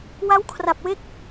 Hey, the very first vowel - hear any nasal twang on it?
no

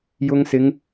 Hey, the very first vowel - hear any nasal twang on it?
no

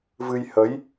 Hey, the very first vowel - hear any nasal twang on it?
no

